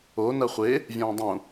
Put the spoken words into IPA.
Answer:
o nɐχʷe | vʲɐ̃ːdˤũ

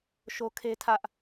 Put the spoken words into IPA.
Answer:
ʃo˦kʰe˦tʰä˦ʔ

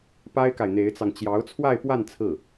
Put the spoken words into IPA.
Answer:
pa˥ɪ̯ka˨ɪ̯n̪e˧˥ɪ̯t͡sɑ˧ŋ t͡ɕjɑ˧˥ʊ̯t͡sʰwa˥˧ɪ̯pwa˥˧n t͡sʰɹ̩˥˩

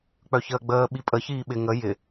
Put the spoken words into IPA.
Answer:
k͡pœçəːɡ͡bəː ɓipʼə çiːɓɪ ŋə jɪ

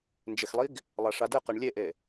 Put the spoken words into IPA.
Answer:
nd͡ʒɪxlˠiɡ | lˠaʂadɘqeɳ lʲeʔe

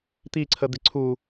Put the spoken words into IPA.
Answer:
t̪iǀʰəd̪ɪ ǀʰu

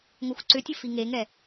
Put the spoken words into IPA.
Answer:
ŋoxʷǀʏtʲə fiŋeŋɛ

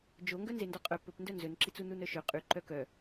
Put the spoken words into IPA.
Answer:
d͡ʒoŋɡœ nzendɔqʼœ pɵpndœ nzɵnǁit͡su nunœʃɵ qʼyǃœ kœ

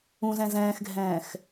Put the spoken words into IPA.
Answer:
ũzɛ̃ zɛ̃ːxɡʱɛ̃ːx

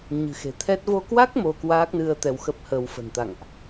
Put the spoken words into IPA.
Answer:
ɲɨ̤˨˩xe̤˨˩ t̪ʰɛ˦˥t̚ vo˧kwa˦˥k̚ mo˧kwaː˦˥k̚nɨ˧ə̯ t̪ɛ˧wxə˦˥p̚həː˧w fə̤˨˩nt̪a̰˧˨ŋʔ

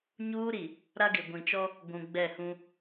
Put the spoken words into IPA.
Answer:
ɲuː˦ɾi˨ | ɾa˦ɡɪ˨ɡʷĩ˨t͡ʃɔ˦ | ɡʷũ˨ɡ͡bɛ˦˨hũ˦

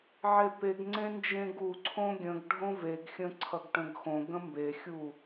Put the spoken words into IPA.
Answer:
ʕepeɡŋ͡ǀẽ nd͡ʒẽɡuǀʰõ ɡʲə̃ɡ ɖʱõveɡxʲə̃ ǀʰʌɡʈə̃ɡxõɡə̃ mbexʲu

